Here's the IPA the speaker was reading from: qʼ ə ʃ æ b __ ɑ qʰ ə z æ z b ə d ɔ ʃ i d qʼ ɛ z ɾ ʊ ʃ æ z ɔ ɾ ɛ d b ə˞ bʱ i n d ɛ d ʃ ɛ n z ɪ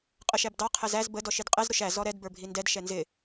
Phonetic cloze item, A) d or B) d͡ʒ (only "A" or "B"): A